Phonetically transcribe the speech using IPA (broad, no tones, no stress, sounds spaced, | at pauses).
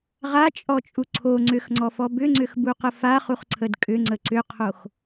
ʁ a t͡ʃʼ ɔ t͡ʃʼ u ǀʰ o ŋ͡ǀ ʏ x ŋ͡ǀ ɔ f ɔ b ʏ ŋ͡ǀ ʏ x b u q ə f a χ u χ ǀʰ ə d kʼ ʏ ŋ͡ǀ ə ǀ ʏ qʰ o x